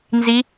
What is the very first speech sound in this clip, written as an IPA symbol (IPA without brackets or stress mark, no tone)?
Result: n